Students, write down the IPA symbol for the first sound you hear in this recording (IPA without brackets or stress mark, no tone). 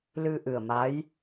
l